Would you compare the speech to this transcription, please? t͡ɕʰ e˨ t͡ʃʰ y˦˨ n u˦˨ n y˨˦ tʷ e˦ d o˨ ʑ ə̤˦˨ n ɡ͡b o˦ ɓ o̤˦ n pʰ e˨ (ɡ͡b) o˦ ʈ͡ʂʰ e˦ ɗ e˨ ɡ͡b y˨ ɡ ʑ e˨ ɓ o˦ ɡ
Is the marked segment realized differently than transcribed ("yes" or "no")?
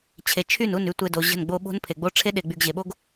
no